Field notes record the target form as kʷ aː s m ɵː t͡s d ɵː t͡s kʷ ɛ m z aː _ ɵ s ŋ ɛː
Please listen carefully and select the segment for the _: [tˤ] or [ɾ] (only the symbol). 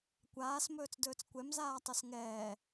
tˤ